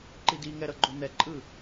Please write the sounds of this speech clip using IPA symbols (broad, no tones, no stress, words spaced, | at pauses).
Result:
ǃidiŋɛɾʌ ɡ͡ǃon̪ɛǃʼɯ